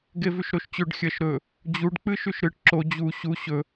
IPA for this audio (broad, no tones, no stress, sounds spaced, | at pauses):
ɡ e v ʉ ʃ ɾ o ʃ t͡ɕ ɵ ɖ xʲ ɐ ʃ ɾ ɵ | d͡ʑ u ɖ k͡p ɨ ʃ ʉ ʃ ɾ ɨ ʈ ǁ o d͡ʑ u ɕ u ɕ ɵ